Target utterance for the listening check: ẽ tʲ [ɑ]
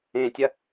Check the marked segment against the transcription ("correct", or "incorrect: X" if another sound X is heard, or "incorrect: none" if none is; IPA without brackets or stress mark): incorrect: ɐ